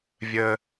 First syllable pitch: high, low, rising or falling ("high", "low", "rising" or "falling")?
high